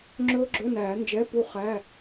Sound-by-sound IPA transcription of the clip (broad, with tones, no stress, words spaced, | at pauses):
ŋ͡ǁɵː˦˥ɡ͡ǁɵ˧˥˧næː˨˩˦ nd͡ʒɛ˧˥˧pu˥˨ χæ˧˥˧